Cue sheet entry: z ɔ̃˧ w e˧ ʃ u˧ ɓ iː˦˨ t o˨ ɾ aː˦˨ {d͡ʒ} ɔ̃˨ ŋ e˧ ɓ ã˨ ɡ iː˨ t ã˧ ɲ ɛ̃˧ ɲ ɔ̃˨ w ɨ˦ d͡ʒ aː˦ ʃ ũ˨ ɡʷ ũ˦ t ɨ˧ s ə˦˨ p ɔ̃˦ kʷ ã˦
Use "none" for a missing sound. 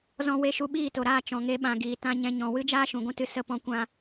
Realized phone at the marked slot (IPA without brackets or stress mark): t͡ʃ